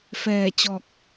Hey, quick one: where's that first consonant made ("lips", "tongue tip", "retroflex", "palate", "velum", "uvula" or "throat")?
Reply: lips